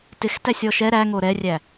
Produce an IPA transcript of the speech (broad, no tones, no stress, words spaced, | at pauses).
tɪxtæsʲ ɔʃɛ ɾæŋo ɾɛrʲæ